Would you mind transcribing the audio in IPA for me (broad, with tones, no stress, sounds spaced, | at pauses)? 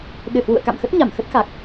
ɗ ɨ˧˩ h w ṵ˧˨ ə̯ k a̰˧˨ m x ə˦˥ t̚ ɲ a˧˩ m x ə˦˥ t̚ x a˨˩ k̚